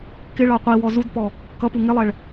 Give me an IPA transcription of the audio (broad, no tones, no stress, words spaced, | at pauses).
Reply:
kɪ ɭɑqʷiwɔ zudpɔ | kʌpu ŋɪlˠɛɭ